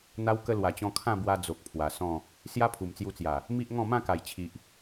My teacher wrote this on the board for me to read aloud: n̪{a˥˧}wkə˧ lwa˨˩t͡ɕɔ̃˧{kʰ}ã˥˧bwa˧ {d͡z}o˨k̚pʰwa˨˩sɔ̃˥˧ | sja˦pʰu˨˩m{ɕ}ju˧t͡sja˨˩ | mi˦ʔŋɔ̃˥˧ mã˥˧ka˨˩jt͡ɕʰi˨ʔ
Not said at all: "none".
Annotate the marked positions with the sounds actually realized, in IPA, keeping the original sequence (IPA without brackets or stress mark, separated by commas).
a˧, kʰ, d͡z, t͡s